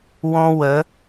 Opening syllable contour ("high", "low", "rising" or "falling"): high